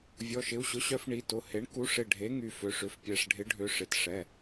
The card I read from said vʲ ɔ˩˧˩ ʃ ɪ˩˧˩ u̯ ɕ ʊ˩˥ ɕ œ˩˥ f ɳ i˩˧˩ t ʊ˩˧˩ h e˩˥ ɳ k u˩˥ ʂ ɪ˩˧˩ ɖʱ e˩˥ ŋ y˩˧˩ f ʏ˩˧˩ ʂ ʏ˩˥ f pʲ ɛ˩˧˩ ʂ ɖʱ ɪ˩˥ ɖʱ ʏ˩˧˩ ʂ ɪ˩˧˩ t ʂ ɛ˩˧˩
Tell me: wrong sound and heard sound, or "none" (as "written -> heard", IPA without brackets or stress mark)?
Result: none